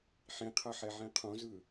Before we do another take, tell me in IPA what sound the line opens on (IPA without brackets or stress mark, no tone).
ħ